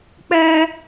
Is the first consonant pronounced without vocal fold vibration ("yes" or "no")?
yes